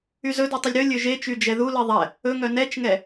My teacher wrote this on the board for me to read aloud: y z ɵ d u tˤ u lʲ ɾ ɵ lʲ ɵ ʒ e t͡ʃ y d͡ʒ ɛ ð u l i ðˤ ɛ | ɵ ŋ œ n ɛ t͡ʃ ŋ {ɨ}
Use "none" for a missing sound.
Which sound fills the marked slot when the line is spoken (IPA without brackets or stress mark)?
ɛ